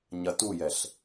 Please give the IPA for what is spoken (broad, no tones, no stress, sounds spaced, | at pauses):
ɲ ɐ t u j ɛ ɬ